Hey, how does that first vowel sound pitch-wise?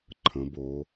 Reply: rising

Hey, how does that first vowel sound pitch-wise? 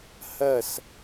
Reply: falling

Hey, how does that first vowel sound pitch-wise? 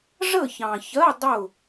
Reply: falling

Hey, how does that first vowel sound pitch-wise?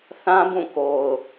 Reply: high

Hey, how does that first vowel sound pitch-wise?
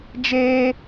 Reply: high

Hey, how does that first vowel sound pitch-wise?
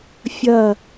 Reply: falling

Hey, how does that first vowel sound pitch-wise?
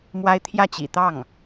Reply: high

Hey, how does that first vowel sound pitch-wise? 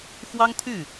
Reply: high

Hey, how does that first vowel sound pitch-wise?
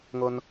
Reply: high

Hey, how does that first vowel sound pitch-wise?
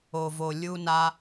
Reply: low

